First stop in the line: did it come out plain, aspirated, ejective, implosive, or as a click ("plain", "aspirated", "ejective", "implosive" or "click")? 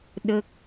implosive